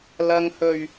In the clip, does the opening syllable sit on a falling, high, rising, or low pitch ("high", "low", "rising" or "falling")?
low